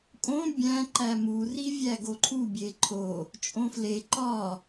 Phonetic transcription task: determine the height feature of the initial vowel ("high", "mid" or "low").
mid